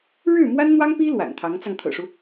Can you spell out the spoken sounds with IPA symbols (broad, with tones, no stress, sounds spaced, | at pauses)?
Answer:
ɻ ɻ̩˥˩ m w a˥ n n̪ w ɑ˥ ŋ p i˥ l w a̰˨˩ n t̪ʰ ɑ˧˥ ŋ t͡s ɑ˧ ŋ t̪ʰ ɤ̰˨˩ ʂ u˦